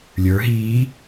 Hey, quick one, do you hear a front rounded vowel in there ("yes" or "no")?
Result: no